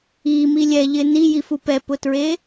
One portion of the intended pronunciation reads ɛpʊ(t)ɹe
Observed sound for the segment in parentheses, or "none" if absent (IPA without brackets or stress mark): t